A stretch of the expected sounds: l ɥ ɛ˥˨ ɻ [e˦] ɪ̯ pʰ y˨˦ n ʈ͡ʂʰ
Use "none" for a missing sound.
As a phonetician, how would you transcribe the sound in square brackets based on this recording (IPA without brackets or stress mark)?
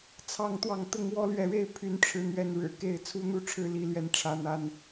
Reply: e˦